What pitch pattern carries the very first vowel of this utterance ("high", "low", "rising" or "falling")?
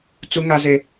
high